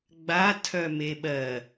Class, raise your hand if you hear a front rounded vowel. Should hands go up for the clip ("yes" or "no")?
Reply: yes